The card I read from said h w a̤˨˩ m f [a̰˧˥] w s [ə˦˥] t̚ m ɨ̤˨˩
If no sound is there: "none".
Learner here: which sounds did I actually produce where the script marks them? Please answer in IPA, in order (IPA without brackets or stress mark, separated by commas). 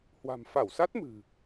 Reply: a˧˩, a˦˥